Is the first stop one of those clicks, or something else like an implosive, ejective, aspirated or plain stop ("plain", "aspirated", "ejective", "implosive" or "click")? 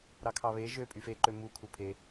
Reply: aspirated